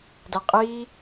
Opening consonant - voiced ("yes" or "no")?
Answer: yes